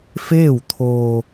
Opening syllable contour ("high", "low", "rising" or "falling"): falling